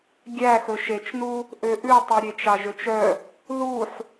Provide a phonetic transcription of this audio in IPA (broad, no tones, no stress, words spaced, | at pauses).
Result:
ɡʲæxɵ ʃet͡ʃnu | ʔøʔʉtˤy ɾʲet͡ʃɑʒøt͡ʃœ | ðuħ